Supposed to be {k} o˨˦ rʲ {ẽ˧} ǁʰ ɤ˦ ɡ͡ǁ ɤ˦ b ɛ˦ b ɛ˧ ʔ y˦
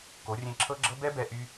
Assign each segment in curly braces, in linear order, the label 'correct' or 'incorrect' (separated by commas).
correct, correct